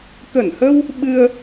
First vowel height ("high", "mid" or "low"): mid